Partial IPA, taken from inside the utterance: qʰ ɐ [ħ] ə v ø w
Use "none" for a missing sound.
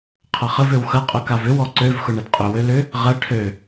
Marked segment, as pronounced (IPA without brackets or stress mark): χ